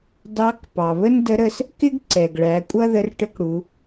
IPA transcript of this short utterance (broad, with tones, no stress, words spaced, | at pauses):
dɑ˧˥k pɑ˩βə˥ndə˧˥ ɾə˧s | kɪ˥ɡǀɛ˩ɡɭæ˩˧ kʷʼʌ˥ðə˧˥r ʈə˧˥kɽu˩˧